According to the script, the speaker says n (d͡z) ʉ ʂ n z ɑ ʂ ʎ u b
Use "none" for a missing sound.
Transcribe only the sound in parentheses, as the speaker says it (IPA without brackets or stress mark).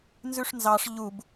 z